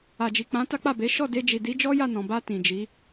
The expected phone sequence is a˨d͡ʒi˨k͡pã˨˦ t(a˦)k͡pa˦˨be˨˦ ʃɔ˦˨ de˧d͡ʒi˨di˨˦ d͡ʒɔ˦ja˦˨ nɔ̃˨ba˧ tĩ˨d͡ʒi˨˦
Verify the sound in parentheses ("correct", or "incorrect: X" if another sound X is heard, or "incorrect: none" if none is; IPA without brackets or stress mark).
correct